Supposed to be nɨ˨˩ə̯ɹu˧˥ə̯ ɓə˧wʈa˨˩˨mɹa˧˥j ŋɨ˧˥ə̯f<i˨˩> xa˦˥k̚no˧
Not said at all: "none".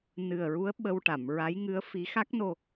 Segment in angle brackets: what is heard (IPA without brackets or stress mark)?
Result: i˧˥